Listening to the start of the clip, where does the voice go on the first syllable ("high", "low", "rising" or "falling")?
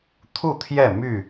falling